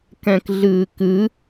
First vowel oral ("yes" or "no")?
no